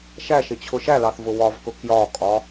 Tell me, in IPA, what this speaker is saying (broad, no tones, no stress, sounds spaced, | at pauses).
ʃ æ ʃ ɪ t͡ɕʰ ʊ ʃ æ l ɑ θ v ʊ w ɒ v k ʊ k j ɒ kʼ ɒ